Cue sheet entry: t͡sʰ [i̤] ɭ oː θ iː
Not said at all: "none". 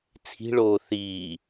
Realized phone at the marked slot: i̤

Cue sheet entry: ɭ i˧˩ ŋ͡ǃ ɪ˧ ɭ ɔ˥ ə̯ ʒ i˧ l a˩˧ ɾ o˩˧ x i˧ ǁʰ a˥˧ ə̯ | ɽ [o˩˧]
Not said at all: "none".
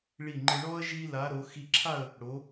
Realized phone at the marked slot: o˩˧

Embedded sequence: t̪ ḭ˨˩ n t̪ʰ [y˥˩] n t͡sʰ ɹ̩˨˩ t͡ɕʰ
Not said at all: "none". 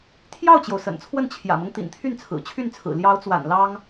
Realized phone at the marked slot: y˥˩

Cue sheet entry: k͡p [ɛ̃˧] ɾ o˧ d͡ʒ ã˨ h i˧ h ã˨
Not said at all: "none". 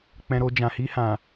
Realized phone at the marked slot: ɛ̃˧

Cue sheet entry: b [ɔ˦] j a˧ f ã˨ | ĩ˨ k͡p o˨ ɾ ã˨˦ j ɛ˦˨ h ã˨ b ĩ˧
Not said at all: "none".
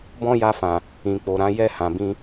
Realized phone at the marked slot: ɔ̃˦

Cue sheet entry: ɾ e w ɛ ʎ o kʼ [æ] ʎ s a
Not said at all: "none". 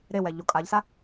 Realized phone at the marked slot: a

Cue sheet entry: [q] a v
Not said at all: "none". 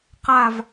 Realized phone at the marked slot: q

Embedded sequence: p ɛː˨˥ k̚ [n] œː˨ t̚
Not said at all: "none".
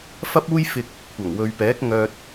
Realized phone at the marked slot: ŋ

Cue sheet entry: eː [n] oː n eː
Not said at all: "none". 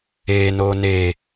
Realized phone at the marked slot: n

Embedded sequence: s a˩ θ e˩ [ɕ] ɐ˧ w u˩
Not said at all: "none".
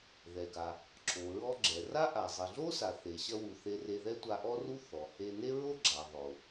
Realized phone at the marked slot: ɕ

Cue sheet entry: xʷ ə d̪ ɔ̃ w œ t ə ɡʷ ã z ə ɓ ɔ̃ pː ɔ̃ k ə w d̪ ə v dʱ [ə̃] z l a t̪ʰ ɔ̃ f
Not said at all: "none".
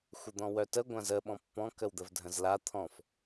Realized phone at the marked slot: ə̃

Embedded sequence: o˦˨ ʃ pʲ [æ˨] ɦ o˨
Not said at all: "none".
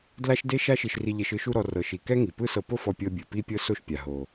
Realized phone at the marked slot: a˨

